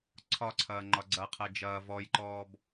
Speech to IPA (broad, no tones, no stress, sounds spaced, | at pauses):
ǀʰ ɒ ǀʰ ɐː ŋ͡ǃ ɒ ɡ͡ǀ ɐ qʰ ɜ d͡ʒ ɐː v ɔ j ǃ ɔː b